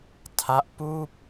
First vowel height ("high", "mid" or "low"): low